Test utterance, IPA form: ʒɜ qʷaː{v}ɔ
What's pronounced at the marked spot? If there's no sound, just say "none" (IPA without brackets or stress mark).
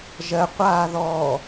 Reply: ð